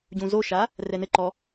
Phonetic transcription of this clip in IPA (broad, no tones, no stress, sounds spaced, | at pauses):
ɟ ũ z o ʃ a | r ɛ n ɘ ǃ ɔ